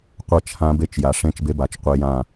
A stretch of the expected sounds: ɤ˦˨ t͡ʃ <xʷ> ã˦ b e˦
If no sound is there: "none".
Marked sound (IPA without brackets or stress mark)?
h